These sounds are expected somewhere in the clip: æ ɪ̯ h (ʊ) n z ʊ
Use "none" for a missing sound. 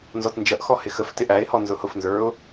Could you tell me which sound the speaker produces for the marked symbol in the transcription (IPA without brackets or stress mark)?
ɔ